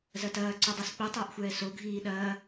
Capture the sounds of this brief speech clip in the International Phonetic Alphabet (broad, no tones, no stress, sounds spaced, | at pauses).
z ɐ t ɐː ǀ o dˤ ɛ s k͡p i tˤ ɐː ʔ xʷ ɛː s o ɡʱ iː ɗ ɐː